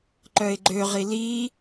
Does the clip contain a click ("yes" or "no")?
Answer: yes